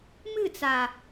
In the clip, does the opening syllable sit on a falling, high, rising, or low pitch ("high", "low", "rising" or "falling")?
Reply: falling